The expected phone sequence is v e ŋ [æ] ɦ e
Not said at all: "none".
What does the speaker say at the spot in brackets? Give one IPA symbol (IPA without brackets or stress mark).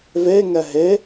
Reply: ɛ